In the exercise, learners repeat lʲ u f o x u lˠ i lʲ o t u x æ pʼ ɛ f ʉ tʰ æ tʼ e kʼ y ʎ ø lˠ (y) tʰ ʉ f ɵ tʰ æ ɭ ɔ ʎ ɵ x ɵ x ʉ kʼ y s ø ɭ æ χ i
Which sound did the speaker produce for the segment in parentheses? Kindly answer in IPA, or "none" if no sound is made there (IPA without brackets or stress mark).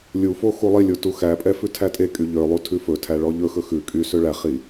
u